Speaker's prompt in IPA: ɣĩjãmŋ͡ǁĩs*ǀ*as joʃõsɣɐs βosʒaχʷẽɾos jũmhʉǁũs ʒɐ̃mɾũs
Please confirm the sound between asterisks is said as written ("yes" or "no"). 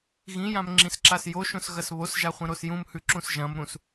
no